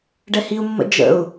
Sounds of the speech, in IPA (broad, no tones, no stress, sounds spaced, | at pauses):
ɖ ɛ h i u̯ mː ə̰ d͡ʒ ə̰ u̯